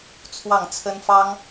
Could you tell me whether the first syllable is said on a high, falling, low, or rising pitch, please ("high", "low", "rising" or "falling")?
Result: falling